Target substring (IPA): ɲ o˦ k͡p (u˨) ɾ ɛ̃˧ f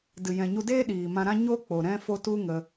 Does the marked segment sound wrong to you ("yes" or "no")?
yes